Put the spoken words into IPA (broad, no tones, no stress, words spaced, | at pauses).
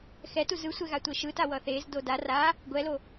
xɛtu zɯsʷɛɣa tʷeʃɯta wʌθez doda ra | ɡʷɛlo